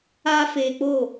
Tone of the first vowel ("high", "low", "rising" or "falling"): high